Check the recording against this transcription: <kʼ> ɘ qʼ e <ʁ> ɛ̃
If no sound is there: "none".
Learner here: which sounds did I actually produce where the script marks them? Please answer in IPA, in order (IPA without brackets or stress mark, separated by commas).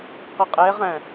q, ʁ